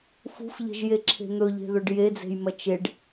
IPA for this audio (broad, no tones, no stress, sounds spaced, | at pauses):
f ṳ f ʎ e̤ ʒ j e ǁʰ e̤ n̪ ɵ ʎ e̤ ð ɵ ɖ j e d͡z e̤ j m ɐ t͡ʃ e ɖ